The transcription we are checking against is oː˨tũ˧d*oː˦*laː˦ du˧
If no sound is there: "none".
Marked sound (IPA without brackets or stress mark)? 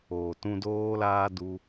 oː˦